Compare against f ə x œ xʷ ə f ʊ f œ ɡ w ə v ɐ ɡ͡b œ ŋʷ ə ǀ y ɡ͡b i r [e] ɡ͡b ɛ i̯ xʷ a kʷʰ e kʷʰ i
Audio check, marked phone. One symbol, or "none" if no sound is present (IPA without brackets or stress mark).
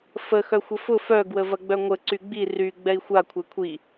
y